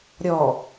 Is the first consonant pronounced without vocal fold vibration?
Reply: no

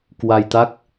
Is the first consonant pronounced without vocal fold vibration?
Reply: yes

